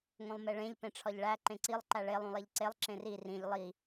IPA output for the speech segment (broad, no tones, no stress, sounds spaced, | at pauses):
ŋ õ lˠ m e ɭ ẽ ʎ p ẽ ʈ͡ʂʰ ɒ ʎ ɭ æ ǃ ẽ ǀ i lˠ ǃ æ ɭ e lˠ ũ lˠ e ʎ ǀ e lˠ ǁ ẽ r i r ĩ ʎ lˠ i